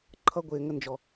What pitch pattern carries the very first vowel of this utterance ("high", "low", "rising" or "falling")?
high